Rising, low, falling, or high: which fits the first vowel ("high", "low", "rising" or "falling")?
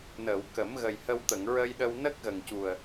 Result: low